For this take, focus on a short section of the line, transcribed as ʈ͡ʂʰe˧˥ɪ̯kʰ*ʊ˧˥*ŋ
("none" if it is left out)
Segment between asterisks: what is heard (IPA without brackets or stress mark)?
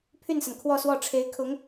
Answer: ʊ˧˥